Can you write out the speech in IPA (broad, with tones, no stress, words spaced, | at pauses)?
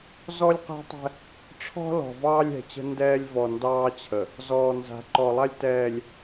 zɔ˦lʲqɛ̤˦tˤɛ̤˦ | ʈ͡ʂʰɔ̤˦ lɔ̤˨vɑː˦lʲɛ̤˨t͡ɕə̤˦ ndɛː˦lʲvɔ˨ ndɑː˦t͡ɕʰə˨ | zɔː˨ nza̤˨ǃɔ˨lˠa˦lʲ tɛː˨lʲ